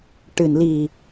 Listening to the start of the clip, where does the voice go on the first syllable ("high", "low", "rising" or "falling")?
low